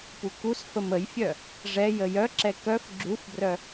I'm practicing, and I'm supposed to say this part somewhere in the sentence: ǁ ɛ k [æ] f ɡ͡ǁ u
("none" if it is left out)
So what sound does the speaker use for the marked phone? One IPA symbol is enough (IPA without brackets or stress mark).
œ